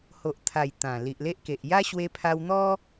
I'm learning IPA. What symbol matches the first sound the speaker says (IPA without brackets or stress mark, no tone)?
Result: h